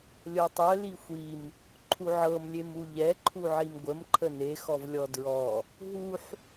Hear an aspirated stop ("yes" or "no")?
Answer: yes